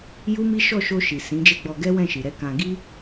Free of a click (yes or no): yes